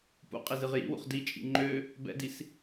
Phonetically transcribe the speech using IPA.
p ṵ qʼ i z ɨ ʁ j ḭ w ṵ χ d i t͡ʃʼ ḭ ŋ͡ǃ ø | b ɛ̰ d i s

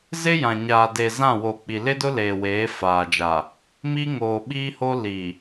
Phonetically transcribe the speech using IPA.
z ɪ˦ j ã˨ ɲ aː˨ d e˨ z ã˦˨ w o˨ k͡p i˨ l ɪ˦ d ʊ˦ l eː˨ w eː˨˦ f aː˨ d͡ʒ a˨ | m i˦ ŋ oː˨ ɓ iː˦ h o˦ l i˨

